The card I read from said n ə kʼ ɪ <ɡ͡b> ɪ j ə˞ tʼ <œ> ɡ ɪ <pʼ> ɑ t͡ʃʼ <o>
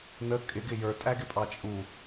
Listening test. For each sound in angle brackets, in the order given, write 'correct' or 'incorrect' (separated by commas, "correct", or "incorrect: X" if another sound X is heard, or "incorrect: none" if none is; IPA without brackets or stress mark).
incorrect: ɡ, incorrect: æ, correct, incorrect: u